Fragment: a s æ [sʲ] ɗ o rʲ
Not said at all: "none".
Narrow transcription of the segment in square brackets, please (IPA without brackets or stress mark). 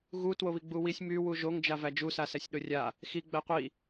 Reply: sʲ